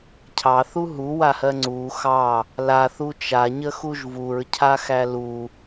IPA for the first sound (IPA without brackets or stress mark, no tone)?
cʰ